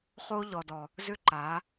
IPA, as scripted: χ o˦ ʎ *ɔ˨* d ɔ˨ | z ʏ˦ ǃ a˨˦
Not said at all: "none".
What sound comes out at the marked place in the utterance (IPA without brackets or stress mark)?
ɔ˨